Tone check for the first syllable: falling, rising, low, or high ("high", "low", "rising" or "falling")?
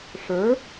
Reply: rising